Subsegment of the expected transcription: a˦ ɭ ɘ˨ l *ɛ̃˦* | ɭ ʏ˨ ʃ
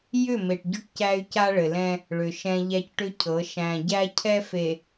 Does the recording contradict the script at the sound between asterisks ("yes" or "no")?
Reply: no